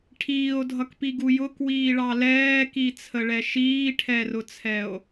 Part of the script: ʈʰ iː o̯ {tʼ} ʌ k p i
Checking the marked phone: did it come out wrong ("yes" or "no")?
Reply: yes